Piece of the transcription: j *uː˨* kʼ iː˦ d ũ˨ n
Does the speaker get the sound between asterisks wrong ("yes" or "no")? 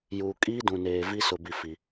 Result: no